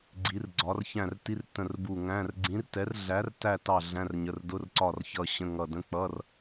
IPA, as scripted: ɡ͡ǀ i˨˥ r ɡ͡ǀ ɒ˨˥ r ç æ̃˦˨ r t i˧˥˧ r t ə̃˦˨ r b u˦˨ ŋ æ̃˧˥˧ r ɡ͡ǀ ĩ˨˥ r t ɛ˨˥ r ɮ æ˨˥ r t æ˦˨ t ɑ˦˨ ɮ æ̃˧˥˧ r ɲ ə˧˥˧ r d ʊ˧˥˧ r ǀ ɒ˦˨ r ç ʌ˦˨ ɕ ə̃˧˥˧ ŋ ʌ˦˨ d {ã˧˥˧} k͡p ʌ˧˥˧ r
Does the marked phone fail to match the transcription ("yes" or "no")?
yes